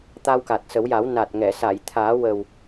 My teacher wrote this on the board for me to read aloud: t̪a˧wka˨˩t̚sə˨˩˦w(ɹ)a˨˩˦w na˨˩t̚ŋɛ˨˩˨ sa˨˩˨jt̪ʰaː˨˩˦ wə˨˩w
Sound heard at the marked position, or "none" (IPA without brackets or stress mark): j